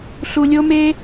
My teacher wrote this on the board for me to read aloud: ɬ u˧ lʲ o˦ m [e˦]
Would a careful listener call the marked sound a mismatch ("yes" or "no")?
no